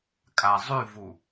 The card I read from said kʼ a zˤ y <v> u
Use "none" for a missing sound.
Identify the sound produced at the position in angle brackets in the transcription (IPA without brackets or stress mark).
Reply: v